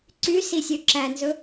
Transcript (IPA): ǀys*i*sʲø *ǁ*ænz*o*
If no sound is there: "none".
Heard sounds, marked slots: i, ǁ, ɵ

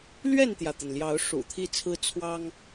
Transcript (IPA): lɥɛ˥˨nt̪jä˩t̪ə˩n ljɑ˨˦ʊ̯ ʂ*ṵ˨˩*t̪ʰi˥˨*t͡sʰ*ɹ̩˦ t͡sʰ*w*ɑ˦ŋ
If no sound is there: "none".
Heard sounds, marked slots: ṵ˨˩, t͡sʰ, w

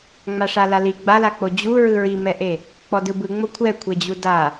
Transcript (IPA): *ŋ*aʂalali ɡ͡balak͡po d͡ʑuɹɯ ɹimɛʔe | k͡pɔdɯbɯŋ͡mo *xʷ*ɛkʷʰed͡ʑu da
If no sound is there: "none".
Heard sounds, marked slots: ŋ͡m, kʷʰ

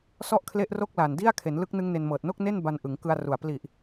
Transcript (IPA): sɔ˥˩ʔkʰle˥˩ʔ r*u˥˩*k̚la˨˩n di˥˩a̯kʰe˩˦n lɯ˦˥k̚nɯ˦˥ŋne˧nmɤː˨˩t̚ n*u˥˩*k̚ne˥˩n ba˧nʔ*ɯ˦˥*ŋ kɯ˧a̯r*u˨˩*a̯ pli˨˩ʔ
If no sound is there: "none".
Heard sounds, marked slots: o˥˩, o˥˩, ɯ˩˦, u˨˩

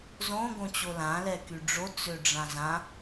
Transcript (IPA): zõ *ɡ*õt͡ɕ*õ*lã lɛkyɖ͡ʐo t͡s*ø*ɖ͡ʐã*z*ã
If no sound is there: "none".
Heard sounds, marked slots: ɡ, o, ø, z

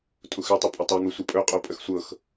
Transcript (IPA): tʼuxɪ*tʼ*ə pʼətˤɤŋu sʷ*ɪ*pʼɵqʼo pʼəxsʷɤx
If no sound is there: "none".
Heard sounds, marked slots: tˤ, ɪ

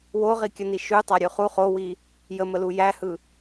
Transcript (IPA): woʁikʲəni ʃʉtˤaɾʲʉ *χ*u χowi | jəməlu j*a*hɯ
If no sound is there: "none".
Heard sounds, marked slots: χ, æ

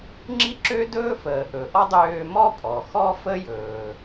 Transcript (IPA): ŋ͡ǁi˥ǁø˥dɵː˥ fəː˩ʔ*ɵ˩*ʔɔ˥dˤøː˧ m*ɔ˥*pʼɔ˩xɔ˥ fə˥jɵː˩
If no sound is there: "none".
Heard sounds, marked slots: ɵ˩, ɔ˥

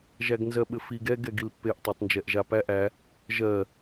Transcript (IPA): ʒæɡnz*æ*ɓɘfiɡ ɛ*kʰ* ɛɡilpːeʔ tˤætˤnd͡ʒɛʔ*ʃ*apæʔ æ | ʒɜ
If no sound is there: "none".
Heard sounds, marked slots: ɜ, ɡ, ʒ

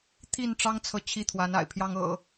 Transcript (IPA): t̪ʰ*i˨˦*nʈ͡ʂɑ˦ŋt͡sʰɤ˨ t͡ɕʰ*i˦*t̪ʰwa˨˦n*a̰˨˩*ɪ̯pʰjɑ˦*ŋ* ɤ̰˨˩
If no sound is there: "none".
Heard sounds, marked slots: i˥˨, i˥˨, a̰˨˩, ŋ

